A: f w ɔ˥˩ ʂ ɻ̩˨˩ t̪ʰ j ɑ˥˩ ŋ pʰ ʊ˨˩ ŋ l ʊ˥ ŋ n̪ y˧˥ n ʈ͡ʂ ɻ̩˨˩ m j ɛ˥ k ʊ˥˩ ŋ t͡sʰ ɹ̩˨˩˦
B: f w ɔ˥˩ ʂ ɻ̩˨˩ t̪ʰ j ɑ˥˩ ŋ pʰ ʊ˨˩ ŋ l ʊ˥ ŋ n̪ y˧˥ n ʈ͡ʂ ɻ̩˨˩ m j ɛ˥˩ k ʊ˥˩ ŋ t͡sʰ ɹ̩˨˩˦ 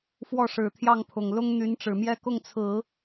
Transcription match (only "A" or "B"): A